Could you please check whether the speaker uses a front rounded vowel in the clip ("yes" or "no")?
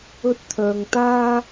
yes